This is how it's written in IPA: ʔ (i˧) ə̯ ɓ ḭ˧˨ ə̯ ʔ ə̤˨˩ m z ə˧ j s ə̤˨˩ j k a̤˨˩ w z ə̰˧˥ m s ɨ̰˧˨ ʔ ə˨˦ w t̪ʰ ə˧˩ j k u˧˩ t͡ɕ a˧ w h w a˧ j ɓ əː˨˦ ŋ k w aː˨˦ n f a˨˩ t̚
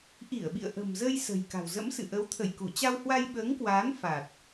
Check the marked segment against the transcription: incorrect: i˧˩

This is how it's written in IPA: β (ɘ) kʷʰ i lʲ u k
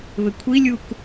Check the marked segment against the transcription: correct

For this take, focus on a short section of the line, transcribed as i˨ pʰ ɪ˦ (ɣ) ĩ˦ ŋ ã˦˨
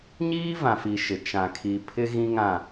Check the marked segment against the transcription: correct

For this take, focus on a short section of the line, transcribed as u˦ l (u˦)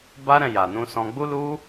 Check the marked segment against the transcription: correct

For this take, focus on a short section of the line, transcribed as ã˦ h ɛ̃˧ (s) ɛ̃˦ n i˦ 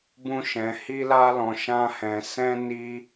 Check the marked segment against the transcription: correct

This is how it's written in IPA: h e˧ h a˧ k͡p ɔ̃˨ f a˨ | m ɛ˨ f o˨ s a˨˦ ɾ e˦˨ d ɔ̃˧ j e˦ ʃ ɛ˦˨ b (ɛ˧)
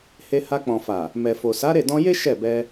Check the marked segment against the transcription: correct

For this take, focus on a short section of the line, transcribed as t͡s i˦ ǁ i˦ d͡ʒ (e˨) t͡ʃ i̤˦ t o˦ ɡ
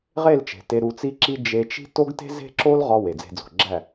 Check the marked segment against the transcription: incorrect: e˧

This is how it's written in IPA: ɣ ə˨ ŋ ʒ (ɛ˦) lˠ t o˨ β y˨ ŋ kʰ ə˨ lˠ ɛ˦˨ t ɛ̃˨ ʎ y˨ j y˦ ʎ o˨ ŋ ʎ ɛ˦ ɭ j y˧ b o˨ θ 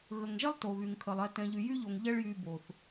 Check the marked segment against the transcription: correct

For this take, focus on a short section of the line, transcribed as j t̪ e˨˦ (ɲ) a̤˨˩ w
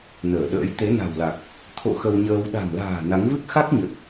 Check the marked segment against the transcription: incorrect: n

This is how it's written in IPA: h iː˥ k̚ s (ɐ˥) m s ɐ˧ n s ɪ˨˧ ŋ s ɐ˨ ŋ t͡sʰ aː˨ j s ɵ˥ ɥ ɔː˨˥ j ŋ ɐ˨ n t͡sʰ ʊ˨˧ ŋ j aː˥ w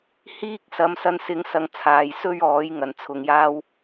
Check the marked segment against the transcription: incorrect: ɐ˨˧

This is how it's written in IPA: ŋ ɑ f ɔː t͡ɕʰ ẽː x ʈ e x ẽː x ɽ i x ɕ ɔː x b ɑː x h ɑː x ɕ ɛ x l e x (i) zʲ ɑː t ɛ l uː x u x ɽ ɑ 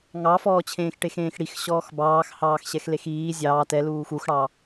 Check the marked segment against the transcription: incorrect: iː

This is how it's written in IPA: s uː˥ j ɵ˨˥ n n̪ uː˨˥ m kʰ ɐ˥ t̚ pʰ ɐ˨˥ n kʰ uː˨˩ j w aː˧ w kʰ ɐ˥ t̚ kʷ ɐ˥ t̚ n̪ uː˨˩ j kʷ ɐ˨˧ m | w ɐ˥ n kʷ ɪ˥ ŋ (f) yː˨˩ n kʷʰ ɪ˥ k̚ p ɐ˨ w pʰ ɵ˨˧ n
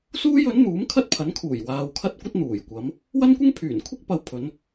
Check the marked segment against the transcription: incorrect: pʰ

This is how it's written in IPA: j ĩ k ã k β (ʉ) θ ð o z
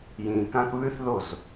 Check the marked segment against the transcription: correct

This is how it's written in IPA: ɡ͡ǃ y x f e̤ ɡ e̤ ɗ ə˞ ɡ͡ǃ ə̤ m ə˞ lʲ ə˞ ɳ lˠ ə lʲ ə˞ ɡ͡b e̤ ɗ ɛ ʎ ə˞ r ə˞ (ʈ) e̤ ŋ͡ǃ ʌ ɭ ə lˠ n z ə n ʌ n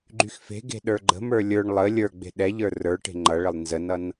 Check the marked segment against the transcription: correct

